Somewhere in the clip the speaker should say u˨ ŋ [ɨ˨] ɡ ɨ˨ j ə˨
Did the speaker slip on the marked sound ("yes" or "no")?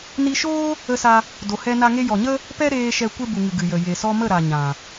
no